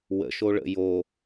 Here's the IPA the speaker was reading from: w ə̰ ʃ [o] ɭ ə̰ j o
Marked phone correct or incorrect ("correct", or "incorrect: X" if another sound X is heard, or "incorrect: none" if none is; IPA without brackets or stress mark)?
correct